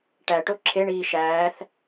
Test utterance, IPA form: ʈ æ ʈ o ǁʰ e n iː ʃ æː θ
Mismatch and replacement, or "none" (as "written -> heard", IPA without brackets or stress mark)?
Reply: n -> ɳ